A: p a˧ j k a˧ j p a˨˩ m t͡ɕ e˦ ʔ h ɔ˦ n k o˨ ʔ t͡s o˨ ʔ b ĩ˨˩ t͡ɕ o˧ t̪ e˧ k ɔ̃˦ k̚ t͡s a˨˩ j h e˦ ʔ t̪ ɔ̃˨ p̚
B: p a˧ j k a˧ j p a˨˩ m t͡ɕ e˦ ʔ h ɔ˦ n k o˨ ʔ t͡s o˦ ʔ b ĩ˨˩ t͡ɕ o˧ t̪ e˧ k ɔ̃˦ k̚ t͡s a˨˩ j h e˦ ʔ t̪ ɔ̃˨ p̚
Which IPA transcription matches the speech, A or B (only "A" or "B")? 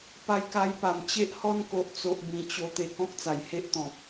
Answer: A